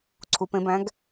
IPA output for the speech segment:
ǀʰ u p ẽ b æ̃ ɡ

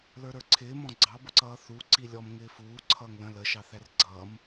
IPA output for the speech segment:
l ə˞ ɾ ə˞ ǀʰ ɪː m ɔ̃ ɡ͡ǀ ɑ b ʊ ǀ ʌː θ u ǀ i lʲ ɔ m ŋ ɪː f uː ǀʰ ʌː ŋ l ə̃ l ə ʃ ɑ θ æ r ɡ͡ǀ ʌː m

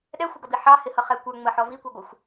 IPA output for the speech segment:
ɗ ɛ xʷ ə ɡ ʌ b i ħ ɑ h ɪ h ʌ χ ɛ kʷ ə˞ ŋ͡m ə ħ ɔ v i kʷ ɛ ɡʷ ə xʷ

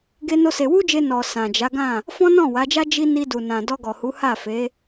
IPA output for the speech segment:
ɡ e˦ n o˦ s e˧ w u˦ d͡ʒ e˧ n ɔ˨ s ã˨ d͡ʒ a˨˦ ɡ ã˦˨ | f ɔ̃˦ n ɔ̃˦˨ w a˨˦ d͡ʒ a˦ d͡ʒ i˦ n i˧ d u˨ n ã˨ d ɔ˧ ɡ ɔ˨ h u˨˦ h a˦˨ f e˨˦

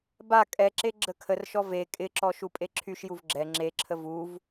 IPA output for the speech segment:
b a kʼ ɛ ǁ e ɡ͡ǁ ə kʰ ə r ʃ ɔ v e kʼ ɪ ǁ ɔ ʃ u pʼ e ǁʰ y ʃ j u v ɡ͡ǁ ɛ ŋ͡ǁ e ǁʰ ə v u v

